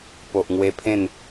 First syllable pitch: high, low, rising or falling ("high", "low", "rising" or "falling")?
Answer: low